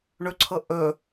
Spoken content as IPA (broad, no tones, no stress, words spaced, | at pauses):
ɳɵǀʰɤ ʔɵ